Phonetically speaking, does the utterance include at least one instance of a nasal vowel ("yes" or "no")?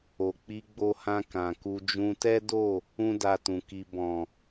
yes